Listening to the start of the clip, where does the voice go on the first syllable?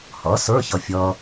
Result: rising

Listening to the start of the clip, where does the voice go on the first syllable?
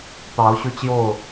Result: rising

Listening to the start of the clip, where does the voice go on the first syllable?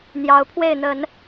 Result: rising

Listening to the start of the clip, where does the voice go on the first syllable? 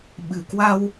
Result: low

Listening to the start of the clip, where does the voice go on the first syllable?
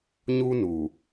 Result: high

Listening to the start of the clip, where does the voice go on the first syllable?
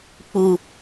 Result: low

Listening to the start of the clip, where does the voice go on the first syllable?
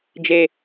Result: low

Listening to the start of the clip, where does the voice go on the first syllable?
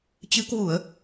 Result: rising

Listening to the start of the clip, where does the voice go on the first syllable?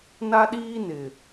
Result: high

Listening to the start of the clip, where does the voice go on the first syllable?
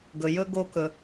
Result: low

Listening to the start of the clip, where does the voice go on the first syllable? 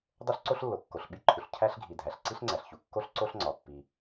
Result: high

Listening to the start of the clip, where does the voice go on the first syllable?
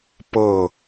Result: falling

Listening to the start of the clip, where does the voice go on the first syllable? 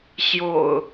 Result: low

